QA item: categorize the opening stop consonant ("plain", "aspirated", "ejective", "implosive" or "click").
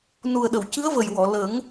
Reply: implosive